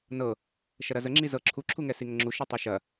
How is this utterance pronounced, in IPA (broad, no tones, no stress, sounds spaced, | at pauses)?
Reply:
n ɤ | ʃ ɐ ɾ ɐ z ə ŋ͡ǁ i z ɤ ǁʰ u ǁʰ u ŋ ɛ s i ŋ ə ŋ͡ǁ u ʃ i tˤ i ʃ ɐ